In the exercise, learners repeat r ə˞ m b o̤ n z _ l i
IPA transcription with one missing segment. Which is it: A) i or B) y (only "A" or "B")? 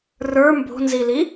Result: A